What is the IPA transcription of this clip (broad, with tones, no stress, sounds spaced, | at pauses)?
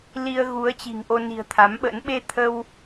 l i˧ ə̯ ɣ u˨˦ ə̯ t͡ɕ i̤˨˩ ŋ ʔ o˧ n i̤˨˩ ə̯ t̪ʰ a˨˦ m ɓ ə̰˧˥ n ɓ e˧ t̪ʰ ə˧ w